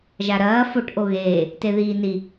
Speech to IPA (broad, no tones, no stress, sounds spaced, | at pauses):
ʒ a ɾ ɐː f o ʈ ʔ o ɣ eː | t e ð iː n i